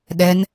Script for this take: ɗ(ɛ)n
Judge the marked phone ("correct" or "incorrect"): correct